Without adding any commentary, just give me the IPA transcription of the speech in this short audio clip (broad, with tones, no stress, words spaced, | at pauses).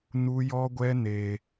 nu˦jɔ˦ɡʷɛ˦ ne˦